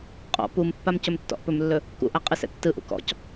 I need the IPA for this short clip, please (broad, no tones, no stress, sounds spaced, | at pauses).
qʼ ɔ̰ p u m pː a m c ɵ m tː ɔ̰ ʔ p ɵ m lː ɵ | k ṵ ʔ a qʼ ɯ s ɛ̰ tː ɯ ʔ ṵ k ɔ̰ c